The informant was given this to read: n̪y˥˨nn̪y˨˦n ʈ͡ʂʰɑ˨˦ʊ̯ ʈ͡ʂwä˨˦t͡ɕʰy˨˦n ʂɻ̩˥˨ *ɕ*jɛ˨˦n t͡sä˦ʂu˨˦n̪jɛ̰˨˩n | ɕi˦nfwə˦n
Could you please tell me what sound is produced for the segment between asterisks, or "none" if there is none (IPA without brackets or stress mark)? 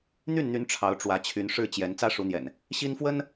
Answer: t͡ɕ